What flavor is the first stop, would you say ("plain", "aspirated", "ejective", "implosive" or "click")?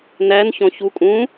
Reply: ejective